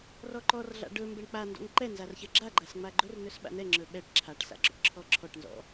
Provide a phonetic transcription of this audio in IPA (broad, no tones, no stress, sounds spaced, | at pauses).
r ɔ ǃ ɔ r ɮ a̰ ɖ ɵ m b ɛ ɳ k͡p a n d ɔ̰ ŋ ǃ ɛ n z a r ç ɜ ɡ͡ǁ a ɡ͡ǃ a s ŋ͡m a ɡ͡ǃ ɵ r n ɵ s ɓ a̰ n ɛ ŋ͡ǁ ɵ ɓ ɛ ʈ ǁʰ a ʈ s a̰ ɡ͡ǁ ɔ̰ ʈ ǁʰ ɔ ǁʰ ɔ ʈ n z ɔ̰